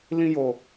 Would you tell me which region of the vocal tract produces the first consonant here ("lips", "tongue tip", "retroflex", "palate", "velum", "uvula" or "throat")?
tongue tip